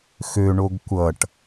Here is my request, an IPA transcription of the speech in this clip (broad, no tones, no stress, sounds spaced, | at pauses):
x ø ɳ o ɡ kʷ ʌ ʈ